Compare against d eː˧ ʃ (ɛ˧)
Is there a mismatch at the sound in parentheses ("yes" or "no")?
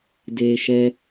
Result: no